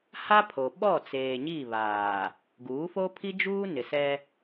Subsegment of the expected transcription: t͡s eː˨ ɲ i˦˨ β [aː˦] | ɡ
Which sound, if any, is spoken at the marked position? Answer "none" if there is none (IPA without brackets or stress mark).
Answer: aː˨